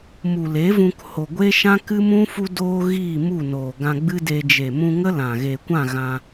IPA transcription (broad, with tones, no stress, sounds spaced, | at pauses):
m u˨ l e˨˦ v ũ˧ k h o˨ ɡʷ e˦ ʃ ã˦ k ɨ˦ m ũ˦ f u˧ d oː˧ ɣ iː˦˨ m u˦˨ n oː˨ ɡ ã˧ ɡ͡b ɨ˦ d e˧ d͡ʒ e˨ m ũ˧ ŋ ə˦ l ã˨ ɣ e˨ kʷ ã˦˨ ɣ ã˧